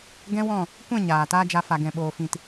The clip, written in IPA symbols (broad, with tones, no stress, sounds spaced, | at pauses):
ɡ ɛ̃˦ w ɔ̃˦˨ | kʷ ɛ̃˦˨ ɲ aː˨ t aː˦ d͡ʒ a˧ f a˨ ɡ ɛ̃˨ ɓ oː˨ f ĩ˨ t